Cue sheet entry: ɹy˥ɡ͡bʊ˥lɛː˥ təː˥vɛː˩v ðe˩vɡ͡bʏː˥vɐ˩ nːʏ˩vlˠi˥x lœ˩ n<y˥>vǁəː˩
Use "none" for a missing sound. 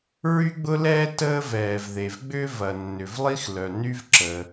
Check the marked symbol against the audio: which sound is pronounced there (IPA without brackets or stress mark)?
y˥